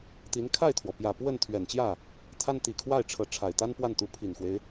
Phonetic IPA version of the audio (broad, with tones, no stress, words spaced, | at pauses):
t̪i˧˥n kʰa˥˩ɪ̯t̪ʰwɔ˩pjä˨˩ pwə˥˩n t̪ʰɥɛ˨˩nt͡ɕjä˥˩ | t̪ʰa˥nt̪i˨˩kʰwa˥˩ɪ̯ʈ͡ʂʰɤ˧˥ ʈ͡ʂʰa˨˩ɪ̯t̪a˥npwa˥˩nt̪u˧˥ pʰi˨˩nxwe˦ɪ̯